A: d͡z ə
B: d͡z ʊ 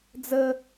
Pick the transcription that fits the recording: A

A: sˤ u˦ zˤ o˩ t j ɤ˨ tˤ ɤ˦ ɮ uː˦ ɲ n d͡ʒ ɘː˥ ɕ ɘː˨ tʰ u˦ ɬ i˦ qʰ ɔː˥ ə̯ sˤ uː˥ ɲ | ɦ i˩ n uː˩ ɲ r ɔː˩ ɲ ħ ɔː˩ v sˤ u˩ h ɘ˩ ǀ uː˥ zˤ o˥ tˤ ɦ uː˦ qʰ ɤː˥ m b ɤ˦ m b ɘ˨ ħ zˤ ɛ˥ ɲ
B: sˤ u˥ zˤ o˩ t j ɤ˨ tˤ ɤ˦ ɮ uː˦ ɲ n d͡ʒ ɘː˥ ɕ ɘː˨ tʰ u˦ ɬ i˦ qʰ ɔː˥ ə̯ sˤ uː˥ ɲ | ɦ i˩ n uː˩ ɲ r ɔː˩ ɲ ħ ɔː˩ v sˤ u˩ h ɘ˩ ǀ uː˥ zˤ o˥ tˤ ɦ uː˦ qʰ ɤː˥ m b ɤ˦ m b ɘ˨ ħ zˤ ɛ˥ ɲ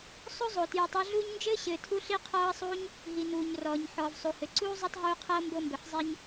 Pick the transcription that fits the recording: B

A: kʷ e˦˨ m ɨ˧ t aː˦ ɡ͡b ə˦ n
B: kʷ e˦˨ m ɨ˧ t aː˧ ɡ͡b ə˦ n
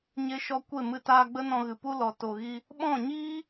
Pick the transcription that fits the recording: B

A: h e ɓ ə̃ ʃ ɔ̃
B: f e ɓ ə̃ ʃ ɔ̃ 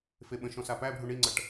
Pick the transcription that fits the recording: B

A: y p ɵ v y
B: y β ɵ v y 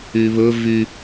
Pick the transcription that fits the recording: B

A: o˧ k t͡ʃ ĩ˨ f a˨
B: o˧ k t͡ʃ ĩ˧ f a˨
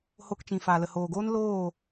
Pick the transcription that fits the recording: A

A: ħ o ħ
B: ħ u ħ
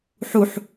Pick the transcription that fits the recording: B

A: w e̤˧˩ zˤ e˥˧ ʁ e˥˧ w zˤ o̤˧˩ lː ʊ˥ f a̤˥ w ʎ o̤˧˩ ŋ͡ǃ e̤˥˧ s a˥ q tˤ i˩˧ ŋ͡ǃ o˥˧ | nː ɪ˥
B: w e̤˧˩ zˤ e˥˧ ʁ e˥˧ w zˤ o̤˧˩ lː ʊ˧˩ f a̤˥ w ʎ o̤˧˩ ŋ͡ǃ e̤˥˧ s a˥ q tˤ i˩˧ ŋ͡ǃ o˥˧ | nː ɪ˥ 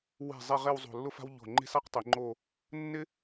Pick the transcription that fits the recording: A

